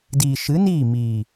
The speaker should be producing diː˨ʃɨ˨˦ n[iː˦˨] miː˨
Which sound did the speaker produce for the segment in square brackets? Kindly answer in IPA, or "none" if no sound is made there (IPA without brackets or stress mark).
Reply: iː˦˨